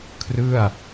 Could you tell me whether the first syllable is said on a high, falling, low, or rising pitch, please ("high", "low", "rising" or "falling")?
falling